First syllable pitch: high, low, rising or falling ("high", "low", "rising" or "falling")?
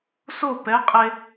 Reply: falling